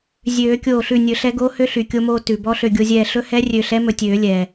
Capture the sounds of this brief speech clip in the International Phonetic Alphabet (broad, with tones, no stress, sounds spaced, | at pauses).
zʲ øː˨˩˦ kʲ oː˧˩ ɬ ʉ˧˩ nʲ ɵ˨˩˦ ɬ ɛ˧˥ ɡ oː˧˥ h ø˧˥ ɬ y˩ kʲ o˧ m oː˧ t ʉ˩ b ɔ˧˥ ɬ ø˧˩ ɡʲ o˧ zʲ ɛː˧˩ ɬ ɵ˧˥ h ɛ˧˥ rʲ ø˧˩ ɬ ɛ˧˥ m ɵ˧˩ tʲ øː˨˩˦ lʲ ɛː˩